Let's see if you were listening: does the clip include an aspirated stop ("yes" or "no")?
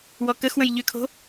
yes